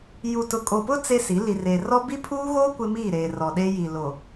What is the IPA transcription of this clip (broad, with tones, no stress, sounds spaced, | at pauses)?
j u˨ t ʊ˨ kʼ o˨ p ʊ˦ t͡s e˦ s i˨˦ l i˨ r eː˨ r ɔ˦ b i˦ pʰ uː˦ ɣ oː˦ kʷ ɪ˦ m iː˦˨ ɾ eː˨ r ɔ˨ ɗ e˦ j i˨ l o˨